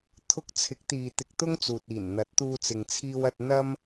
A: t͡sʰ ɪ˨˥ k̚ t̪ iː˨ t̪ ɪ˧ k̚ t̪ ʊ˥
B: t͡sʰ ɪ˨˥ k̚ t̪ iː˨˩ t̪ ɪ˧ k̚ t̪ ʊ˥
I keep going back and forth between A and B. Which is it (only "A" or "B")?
A